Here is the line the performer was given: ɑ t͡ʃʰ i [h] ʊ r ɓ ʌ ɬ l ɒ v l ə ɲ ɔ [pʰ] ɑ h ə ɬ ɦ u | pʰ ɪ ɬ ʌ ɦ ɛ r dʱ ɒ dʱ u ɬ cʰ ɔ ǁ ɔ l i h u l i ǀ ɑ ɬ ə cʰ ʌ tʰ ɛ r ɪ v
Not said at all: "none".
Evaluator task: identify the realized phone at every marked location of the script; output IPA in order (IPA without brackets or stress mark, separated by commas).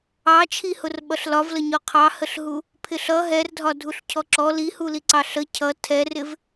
h, qʰ